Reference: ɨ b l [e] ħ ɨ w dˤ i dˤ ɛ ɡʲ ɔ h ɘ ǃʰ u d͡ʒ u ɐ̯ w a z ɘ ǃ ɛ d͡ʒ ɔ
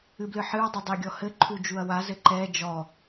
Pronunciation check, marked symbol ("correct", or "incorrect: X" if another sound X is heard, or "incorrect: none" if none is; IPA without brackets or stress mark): incorrect: ɨ